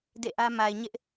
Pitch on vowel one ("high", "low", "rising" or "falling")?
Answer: falling